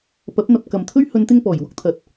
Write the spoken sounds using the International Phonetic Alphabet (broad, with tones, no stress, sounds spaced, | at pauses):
p ɐ˨˥ p̚ n̪ ɐ˨ p̚ k ɐ˨ m t̪ʰ ɵ˥ ɥ h ɵ˨˧ n t̪ ɪ˧ ŋ p ɔː˨˩ j w ʊ˧ k̚ t̪ʰ ɐ˨˥ t̚